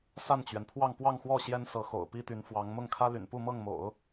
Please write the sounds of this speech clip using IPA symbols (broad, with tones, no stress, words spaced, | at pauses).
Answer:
sa˥˩nt͡ɕɥɛ˩n pʰwɑ˥˧ŋpwɑ˥˧ŋxwɔ˥˩ ɕjɛ˥nsɤ˧˥xo̰˨˩ʊ̯ pi˥t̪y˧˥nfwɑ˧˥ŋ mʊ˥˩ŋkʰä˥ ly̰˨˩npu˥˧mɤ˥˩ŋ mo̰˨˩˦ʊ̯